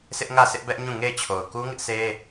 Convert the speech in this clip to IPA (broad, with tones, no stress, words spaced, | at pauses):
sɪ˦ʔŋä˦˨sɪ˦ʔ bɛ˦ʔɲũ˦˨ŋe˦˨ɪ̯t͡ɕʰo˨ʊ̯ ku˦ŋɪ˦ʔsʰe˦